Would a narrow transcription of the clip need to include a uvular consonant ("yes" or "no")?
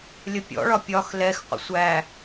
yes